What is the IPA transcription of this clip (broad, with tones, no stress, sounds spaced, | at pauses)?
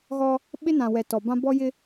ɣ ɔ˦ | ɓ ɪ˦ n ã˨ w ɛ˨ t ɔ˨ b ã˦ b ɔ˦ j ɪ˦